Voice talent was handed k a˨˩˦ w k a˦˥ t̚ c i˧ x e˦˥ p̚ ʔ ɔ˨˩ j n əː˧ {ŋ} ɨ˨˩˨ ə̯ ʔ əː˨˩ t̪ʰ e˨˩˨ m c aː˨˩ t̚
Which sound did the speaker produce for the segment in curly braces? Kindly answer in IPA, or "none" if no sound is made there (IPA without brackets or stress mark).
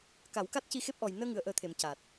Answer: ŋ